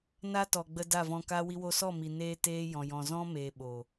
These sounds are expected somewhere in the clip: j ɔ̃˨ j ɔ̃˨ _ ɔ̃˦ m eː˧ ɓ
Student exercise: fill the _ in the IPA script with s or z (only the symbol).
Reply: z